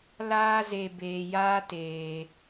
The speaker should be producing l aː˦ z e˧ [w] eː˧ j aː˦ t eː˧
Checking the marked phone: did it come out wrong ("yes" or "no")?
yes